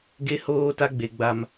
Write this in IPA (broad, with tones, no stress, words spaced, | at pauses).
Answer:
ɡe˦ hoː˦ta˦ɡ͡be˨ ɡ͡ba˦m